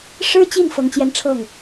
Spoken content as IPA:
ʂ ɻ̩˥ t͡ɕ i˥˩ n f ɤ˥ ŋ t͡ɕ j ɛ˥˧ n ʈ͡ʂʰ ɤ˥˩ ŋ

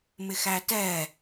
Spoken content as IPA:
m ɪ x æ t ɛ

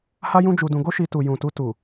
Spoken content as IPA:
h a˦ j ũ˦ d͡ʒ u˧ d ũ˧ ɡ o˦ ʃ i˧ t u˨ j ũ˨ t u˧ t u˨

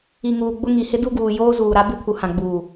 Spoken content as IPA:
i˨ ŋ uː˨ ɡ͡b ʊ˦ ŋ i˨ h ɪ˦ d u˦ ɡ uː˨ j oː˦ z uː˨ ɾ a˦ b ɪ˦ pʰ u˨ h ã˨ ɡ͡b uː˨

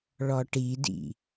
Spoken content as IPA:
ɭ ɔ ʈ i d ḭ

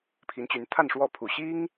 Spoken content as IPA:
pʰ i˧˥ n t͡ɕ y˧˥ n t̪ʰ a˥˧ n ʂ w ɔ˥˩ pʰ u˨˩ ɕ i˥ ŋ

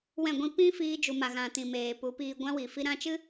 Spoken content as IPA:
w ɛ̃˦˨ ɡʷ ĩ˦ p ĩ˦ f iː˧ d͡ʒ u˨ m a˨ ɣ ã˨ t ĩ˨ m eː˨ p u˨˦ p iː˧ ɡʷ ã˦ w i˨ f i˦ ɾ ã˧ t͡ʃ ɨ˦

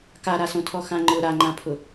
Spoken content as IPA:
k a ɾ a s õ tʰ ɔ x ã ŋ͡ǃ ʊ ɾ a ŋ͡ǃ ã pʰ ʊ

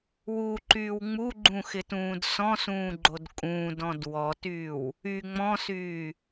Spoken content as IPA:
w u ǃ yː w ŋ͡m u ɡ͡ǃ ũ x ɪ t ũː d s ɔ̃ s ũː ɡ͡ǃ o d kʼ ũː d ɔ̃ d w ɔ t yː w | y ŋ͡m ɔ̃ s yː

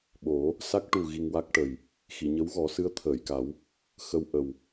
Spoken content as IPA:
ɓ o˨˩˦ | s a˦˥ k̚ ʈ u˨˩ ɣ i˧ ŋ w a˦˥ k̚ ʈ ə˨˩ j | x i˨˩˨ ɲ ə˧˥ w ɣ ɔ˨˩˦ s ɨ˧˥ ə̯ t̪ʰ əː˨˩˨ j k a˨˩˦ w | x ə˧ w ʔ ə˨˩ w

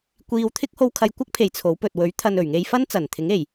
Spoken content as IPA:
kʷ iː˧ w t̪ʰ ɪ˥ k̚ h o˧ w kʰ ɐ˧ j kʷ ɐ˥ k̚ pʰ e˨ j t͡sʰ o˨˥ w p ɵ˨ t̚ w ɵ˨˥ ɥ t̪ʰ ɐ˨ n ɵ˨˩ ɥ ŋ e˧ j f ɐ˥ n t͡s ɐ˨˩ n t̪ʰ ɪ˨˥ ŋ e˨˩ j

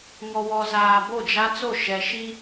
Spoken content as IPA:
ŋ ɔ˨ w ɔ˨ z aː˨ b o˦˨ d͡ʒ a˦ t͡s o˦˨ ʃ ɛ˨ ʃ i˦

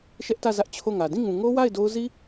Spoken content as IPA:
ʃ ɛ˦ ʔ t ä˦˨ z ä˦ ʔ t͡ɕʰ o˦˨ ŋ ä˨ d ĩ˦˨ ŋ ũ˨ ŋ o˦ w a˦˨ ɪ̯ d o˦ ʊ̯ z i˦

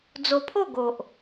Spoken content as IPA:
d͡z o˧ pʰ o˥˧ ɡ o˨ ʔ

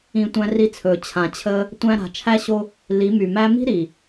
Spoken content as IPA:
ĩ˨ tʷ æ̃˧ r i˧ t͡sʰ ɵː˨ t͡ɕʰ ã˨ t͡ɕʰ əː˦ | tʷ æ̃˧ ɾ a̤˨ t͡ʃʰ æ˦ ɕ o˦ | l i˨˦ m y˨ m æ˧ m i̤˦ ɾ i˨

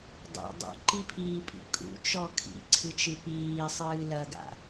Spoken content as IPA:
dˤ ḭ dˤ ṵ ǃ i pʰ iː pʼ ḭ kʼ ṵ t͡ʃ ɔ kʰ ḭ ǀʰ ɨ t͡ʃ ɨ p iː sˤ ɨː l ɐ ɡ a̰

